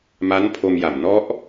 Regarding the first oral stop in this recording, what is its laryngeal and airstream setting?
aspirated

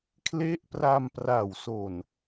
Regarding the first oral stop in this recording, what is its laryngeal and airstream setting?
aspirated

